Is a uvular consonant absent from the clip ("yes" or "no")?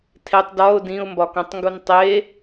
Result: yes